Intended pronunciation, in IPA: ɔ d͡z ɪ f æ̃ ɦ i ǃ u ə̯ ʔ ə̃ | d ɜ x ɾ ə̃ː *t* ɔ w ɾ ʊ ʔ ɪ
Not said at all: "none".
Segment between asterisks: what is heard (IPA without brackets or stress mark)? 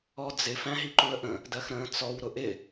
t͡s